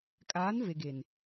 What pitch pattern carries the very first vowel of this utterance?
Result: rising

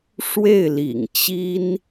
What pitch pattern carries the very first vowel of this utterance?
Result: falling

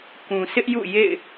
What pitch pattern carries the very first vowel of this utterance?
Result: low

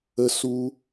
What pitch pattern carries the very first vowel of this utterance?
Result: high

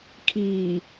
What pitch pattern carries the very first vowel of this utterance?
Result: low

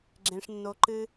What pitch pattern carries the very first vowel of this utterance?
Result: high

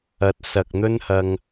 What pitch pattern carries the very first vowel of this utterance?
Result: low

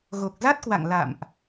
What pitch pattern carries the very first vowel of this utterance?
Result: low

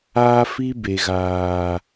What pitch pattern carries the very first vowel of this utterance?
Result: high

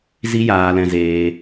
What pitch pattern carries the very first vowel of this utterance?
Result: high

